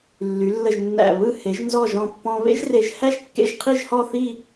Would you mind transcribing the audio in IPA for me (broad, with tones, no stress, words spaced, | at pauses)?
lːy˩˧lːə˧˩ʒnːæ̰˧˩ βɯ˥˧ he˩˧ʒnzɔ˧˩ʒɔ̃˧˩ pːɔ̃˧ βḛ˥ʒre˧ʒhæ˥ʒ kːḛ˥˧ʒqʰi˥˧ʒhɔ˥˧ θi˥˧